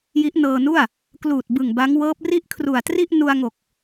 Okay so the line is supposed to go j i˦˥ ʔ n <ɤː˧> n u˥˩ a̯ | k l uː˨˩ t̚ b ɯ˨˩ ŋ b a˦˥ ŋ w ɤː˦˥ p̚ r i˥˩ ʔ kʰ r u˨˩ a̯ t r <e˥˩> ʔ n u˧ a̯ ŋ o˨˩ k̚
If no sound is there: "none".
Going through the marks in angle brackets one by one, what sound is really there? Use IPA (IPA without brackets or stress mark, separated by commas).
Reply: ɤː˧, i˥˩